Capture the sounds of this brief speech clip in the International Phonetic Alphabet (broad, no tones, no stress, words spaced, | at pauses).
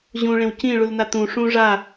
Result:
ʑũ ɭẽwcĩ ɭulnat̪ũ ʂũ ʐa